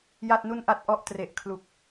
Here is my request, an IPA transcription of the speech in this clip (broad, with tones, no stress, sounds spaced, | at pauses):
j a˥˩ t̚ n u˥˩ n ʔ a˥˩ t̚ ʔ ɔ˦˥ ʔ t r e˨˩ ʔ kʰ l u˨˩ k̚